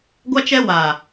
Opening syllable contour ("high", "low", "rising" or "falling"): high